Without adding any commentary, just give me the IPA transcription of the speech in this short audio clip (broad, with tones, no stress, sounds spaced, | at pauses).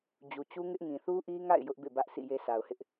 d͡ʑ u˨ t͡ɕ u˦ ŋ ɪ˦ ʔ ŋ ĩ˨ θ u˦ ʔ i˦ ŋ a̰˦˨ ɪ̯ j ʊ˦ ʔ b ḛ˦˨ b ä˦ ʔ sʰ ḭ˦˨ j e˦ sʰ a˨ ʊ̯ h ɪ˦ ʔ